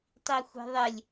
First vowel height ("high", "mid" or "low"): high